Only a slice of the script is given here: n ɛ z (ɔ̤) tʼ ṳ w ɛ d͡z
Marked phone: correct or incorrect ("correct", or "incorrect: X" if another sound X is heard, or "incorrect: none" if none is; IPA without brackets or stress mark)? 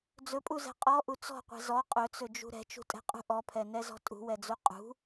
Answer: correct